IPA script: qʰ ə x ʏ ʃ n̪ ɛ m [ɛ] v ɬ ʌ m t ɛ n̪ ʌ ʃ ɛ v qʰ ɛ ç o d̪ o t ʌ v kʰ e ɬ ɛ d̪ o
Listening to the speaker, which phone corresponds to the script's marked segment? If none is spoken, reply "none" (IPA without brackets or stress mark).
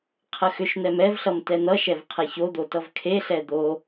ɛ